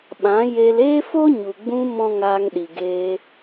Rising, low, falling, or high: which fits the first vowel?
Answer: rising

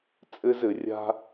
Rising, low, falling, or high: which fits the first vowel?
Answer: high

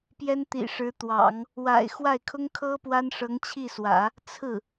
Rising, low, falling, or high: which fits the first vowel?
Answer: high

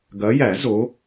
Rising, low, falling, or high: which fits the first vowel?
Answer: rising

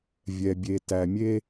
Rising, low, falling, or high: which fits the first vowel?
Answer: low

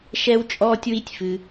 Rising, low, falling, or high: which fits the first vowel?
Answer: high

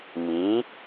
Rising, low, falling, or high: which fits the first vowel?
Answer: rising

